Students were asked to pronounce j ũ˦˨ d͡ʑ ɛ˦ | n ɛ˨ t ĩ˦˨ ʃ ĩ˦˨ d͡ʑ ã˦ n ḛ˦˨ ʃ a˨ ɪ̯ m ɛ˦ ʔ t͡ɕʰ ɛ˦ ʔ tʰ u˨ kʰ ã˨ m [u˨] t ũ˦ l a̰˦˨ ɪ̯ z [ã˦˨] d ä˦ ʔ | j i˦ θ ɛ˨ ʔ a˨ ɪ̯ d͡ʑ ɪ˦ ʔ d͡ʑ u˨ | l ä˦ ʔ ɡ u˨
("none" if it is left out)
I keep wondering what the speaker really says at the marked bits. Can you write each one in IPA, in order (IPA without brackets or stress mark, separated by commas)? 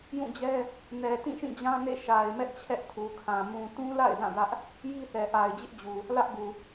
ũ˨, ã˦˨